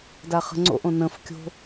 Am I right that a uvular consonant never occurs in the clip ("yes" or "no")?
no